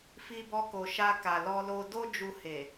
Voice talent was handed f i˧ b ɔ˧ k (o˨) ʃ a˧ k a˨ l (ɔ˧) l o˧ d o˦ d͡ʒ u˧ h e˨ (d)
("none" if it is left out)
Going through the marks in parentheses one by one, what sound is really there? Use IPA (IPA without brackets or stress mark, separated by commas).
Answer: o˨, ɔ˧, none